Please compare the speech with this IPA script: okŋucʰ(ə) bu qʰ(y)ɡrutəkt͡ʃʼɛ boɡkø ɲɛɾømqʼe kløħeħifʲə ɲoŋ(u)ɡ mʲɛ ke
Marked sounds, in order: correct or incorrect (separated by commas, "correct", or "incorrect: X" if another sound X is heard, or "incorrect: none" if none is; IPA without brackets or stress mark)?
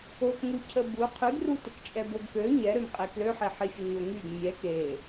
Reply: correct, correct, incorrect: y